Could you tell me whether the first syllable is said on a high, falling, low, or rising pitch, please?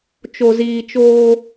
low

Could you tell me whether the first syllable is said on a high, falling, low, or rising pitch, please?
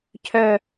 falling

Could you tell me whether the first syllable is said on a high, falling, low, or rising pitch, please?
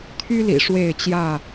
high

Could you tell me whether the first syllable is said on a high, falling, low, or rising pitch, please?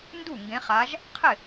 falling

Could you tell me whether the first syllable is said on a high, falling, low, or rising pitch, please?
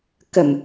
low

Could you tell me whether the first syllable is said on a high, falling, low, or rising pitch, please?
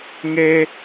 high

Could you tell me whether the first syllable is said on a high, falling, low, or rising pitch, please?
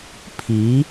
rising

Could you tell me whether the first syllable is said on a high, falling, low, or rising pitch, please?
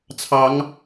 rising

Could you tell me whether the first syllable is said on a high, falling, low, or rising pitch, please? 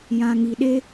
low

